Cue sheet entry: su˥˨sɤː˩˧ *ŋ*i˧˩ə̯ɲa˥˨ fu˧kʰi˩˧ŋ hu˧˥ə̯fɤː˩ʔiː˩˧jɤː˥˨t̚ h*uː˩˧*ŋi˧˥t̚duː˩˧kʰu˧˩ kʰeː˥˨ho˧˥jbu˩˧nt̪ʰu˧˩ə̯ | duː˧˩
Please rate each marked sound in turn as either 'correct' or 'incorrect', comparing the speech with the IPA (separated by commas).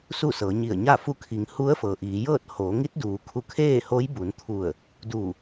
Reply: incorrect, incorrect